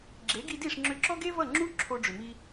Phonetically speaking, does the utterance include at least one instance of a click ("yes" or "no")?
yes